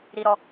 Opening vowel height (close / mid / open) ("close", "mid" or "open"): close